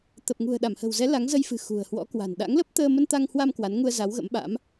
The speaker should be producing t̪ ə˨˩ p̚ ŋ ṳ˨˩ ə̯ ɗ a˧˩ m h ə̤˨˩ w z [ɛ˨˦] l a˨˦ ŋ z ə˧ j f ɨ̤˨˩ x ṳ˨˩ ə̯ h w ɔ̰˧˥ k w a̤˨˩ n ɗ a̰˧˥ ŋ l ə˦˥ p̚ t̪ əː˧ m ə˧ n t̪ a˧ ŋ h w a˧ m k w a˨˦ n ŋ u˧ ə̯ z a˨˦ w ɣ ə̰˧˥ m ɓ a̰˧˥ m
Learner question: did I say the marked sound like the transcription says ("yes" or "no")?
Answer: yes